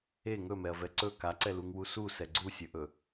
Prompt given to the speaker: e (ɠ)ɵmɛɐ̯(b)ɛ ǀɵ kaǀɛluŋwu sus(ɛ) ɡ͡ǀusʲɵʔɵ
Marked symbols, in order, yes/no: no, no, yes

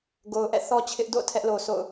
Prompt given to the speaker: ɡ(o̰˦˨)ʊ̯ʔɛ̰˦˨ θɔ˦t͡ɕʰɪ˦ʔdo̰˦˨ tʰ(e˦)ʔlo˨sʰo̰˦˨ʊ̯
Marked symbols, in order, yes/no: no, no

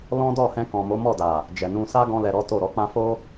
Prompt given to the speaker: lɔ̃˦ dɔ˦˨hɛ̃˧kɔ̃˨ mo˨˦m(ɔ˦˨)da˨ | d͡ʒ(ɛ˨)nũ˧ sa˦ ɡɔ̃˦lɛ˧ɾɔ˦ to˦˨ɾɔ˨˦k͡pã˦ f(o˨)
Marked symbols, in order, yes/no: yes, yes, no

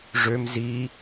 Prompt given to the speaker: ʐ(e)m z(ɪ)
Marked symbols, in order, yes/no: no, no

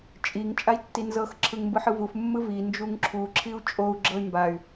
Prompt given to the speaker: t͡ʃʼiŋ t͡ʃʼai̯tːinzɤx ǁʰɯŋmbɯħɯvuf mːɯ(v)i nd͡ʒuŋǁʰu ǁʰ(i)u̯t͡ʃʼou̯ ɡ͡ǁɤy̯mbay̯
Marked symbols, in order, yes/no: yes, yes

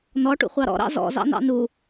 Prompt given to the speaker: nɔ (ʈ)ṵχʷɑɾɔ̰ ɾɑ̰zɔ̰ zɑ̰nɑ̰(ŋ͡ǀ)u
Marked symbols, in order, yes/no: yes, no

